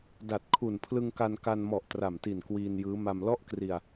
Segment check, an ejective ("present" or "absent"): absent